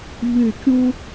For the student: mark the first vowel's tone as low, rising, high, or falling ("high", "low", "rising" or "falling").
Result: falling